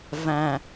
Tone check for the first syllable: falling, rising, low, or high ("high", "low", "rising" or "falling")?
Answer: low